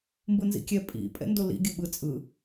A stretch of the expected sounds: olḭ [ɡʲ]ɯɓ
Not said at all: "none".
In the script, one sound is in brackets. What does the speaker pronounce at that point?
ɡʲ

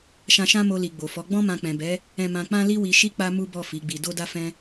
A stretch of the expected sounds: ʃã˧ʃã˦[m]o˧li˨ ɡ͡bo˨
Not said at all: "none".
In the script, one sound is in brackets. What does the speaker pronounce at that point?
m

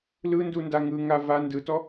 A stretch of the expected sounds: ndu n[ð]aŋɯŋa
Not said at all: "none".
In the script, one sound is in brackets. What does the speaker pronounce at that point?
d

